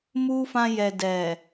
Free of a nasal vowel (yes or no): no